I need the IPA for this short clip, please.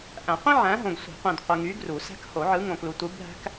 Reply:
ʔ æ̃˨˩˦ qʷ ĩ˥ ʕ æ̃˨˦ ɦ õ˨ ɡ sʷ i̤˨˩˦ qʷ ĩ˨ d qʷ ɯ˨ ŋ y˨˦ ɡ r u˨˩˦ s æ̤˥ k h o˨˩˦ ʕ ɯ˨˦ ŋ õ˨ k l u˨ tʷ ɯ˨˦ bʱ æ̤˥ k

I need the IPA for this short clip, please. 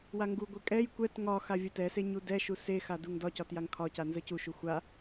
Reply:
w a ŋ ɡ u ɡʷ e kʼ ɛ j kʷ ɛ t ŋ ɒ x a vʲ ə t ɛ s e ɲ u d ɛ ʃ u s e x a d u ŋ d ɒ c ɒ t j a ŋ kʰ ɒ c a n z ə c u ʃ u xʷ a

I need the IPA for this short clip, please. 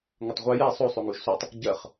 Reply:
ŋ ʌ tˤ ʁʷ ɜ j ɛ sˤ o sˤ o ŋ u ʒ s o tˤ | ɟ ɜ χ

